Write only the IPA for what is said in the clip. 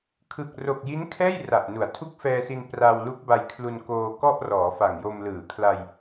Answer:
kʰ ɯ˨˩ k̚ r o˨˩ k̚ j i˦˥ n kʰ ɛː˥˩ j r a˨˩ ʔ n u˩˦ a̯ tʰ u˥˩ k̚ f ɛː˧ s i˧ n p r a˧ w l u˦˥ k̚ b a˧ j kʰ l u˧ n k oː˧ k ɔ˥˩ ʔ r ɔː˩˦ f a˨˩ ŋ j o˧ m l ɯː˩˦ kʰ l a˧ j

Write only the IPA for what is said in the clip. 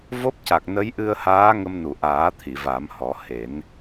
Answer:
v o˦˥ p̚ c a˨˩ k̚ n ə˧˥ j ʔ ɨ˧ ə̯ h aː˧˥ ŋ ə˧ m n u˨˩˨ ʔ aː˨˩˦ t̪ʰ i˨˩˨ v a˨˩˦ m h ɔ˨˩˦ h e˨˩˦ n

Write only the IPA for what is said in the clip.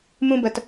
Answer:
m ũ˦ b ə˧ t

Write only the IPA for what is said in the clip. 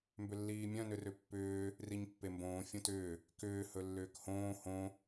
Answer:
m b ʏ lː iː mʲ œ̃ n ʏ r ʏ pː ʏː | r i ɲ pː e m b õː fʲ õ t ʏː | k ʏː h ɵ lː ʏː k h õː h õ

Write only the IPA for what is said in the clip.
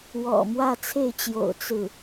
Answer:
w ɔ̰˨˩ m w ä˥˧ t͡sʰ e˥˩ ɪ̯ t͡ɕ j o̰˨˩ ʊ̯ t͡s ɹ̩˥˩

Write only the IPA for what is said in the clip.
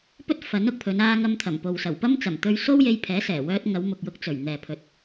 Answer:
p ɵ˥ t̚ f ɐ˨˥ n ʊ˧ k̚ pʰ ɵ˨˧ n aː˧ ŋ ɐ˧ m t̪ʰ ɐ˨˩ m p o˨ w s ɐ˨˩ w p ɐ˥ m t͡s ɐ˨˩ m t̪ ɵ˧ ɥ s o˥ w j e˧ j pʰ ɛː˨˥ s ɛː˨˩ w œː˧ t̚ ŋ ɐ˨˧ w m ʊ˨ k̚ j ʊ˧ k̚ t͡s ɵ˨˩ ɥ n̪ ɛː˨ pʰ ɵ˨˥ t̚

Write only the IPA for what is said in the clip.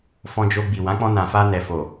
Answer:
f ɔ̃˧ d͡ʒ o˧ ɡ͡b i˨ w ã˨˦ k͡p ɔ̃˧ n ã˨ f a˧ n ɛ˨ f o˨

